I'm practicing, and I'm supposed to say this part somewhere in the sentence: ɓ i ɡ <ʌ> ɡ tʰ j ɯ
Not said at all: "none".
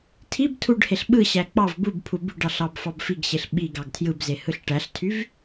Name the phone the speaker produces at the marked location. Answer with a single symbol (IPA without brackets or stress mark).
ɑ